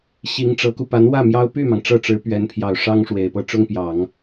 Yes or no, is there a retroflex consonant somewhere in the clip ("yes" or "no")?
yes